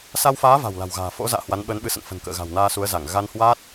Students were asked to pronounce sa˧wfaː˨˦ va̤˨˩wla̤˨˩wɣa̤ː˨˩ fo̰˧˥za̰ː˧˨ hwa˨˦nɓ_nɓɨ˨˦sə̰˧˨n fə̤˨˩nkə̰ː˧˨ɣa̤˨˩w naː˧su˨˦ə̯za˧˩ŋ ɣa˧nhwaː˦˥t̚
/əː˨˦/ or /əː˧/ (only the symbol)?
əː˨˦